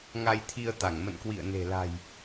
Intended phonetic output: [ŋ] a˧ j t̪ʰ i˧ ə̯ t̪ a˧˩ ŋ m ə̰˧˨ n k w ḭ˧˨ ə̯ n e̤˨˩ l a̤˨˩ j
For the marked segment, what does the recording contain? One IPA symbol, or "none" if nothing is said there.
ŋ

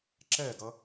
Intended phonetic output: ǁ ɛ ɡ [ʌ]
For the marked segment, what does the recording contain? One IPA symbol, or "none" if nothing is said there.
ʌ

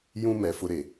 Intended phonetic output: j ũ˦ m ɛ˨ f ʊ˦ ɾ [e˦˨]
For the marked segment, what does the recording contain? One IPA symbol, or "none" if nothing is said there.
e˨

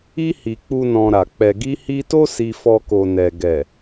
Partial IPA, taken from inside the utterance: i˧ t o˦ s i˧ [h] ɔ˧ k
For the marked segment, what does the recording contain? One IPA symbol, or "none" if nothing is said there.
f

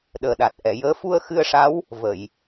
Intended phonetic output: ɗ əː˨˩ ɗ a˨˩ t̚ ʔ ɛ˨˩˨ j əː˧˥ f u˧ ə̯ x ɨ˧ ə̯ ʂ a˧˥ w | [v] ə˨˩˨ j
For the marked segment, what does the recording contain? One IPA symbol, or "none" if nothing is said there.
v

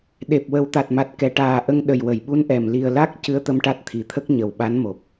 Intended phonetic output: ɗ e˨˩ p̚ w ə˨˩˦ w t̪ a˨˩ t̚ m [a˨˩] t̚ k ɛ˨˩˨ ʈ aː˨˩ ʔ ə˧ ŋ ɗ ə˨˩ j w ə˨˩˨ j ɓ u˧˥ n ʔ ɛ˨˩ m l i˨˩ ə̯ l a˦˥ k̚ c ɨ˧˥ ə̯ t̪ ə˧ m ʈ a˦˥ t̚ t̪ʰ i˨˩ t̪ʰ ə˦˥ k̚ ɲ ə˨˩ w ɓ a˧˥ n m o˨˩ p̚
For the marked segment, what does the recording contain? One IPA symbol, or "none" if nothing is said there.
a˨˩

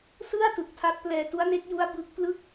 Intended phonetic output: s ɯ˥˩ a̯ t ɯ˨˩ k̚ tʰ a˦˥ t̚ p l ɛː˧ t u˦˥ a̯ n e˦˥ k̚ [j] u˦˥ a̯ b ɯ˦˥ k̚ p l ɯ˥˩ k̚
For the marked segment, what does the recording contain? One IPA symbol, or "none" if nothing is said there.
j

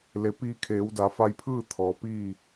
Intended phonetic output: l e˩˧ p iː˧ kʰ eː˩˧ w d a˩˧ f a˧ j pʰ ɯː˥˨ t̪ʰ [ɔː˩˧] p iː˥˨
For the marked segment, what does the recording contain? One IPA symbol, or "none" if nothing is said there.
ɔː˩˧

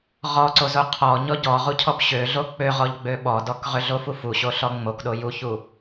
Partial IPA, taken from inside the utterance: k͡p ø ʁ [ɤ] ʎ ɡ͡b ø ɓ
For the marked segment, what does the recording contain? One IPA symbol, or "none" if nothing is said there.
ɔ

